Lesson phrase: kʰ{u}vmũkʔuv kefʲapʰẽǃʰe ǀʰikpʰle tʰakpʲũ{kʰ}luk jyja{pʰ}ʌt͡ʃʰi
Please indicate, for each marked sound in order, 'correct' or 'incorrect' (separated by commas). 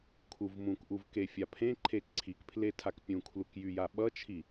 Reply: correct, correct, incorrect